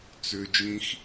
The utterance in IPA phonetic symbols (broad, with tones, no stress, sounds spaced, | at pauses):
t͡s ʏː˧ d͡ʒ ĩ˦ x